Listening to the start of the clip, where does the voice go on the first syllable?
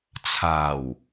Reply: low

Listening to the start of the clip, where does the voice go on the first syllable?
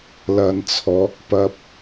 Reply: low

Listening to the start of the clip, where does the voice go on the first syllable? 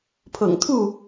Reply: low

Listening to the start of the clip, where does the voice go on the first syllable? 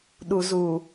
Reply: low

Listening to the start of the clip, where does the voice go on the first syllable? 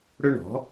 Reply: high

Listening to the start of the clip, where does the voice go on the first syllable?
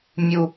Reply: high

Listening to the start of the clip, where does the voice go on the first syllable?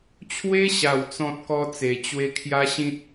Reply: high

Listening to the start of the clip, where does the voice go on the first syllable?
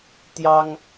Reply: high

